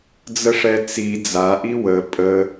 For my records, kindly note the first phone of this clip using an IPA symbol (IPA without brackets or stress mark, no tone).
d͡z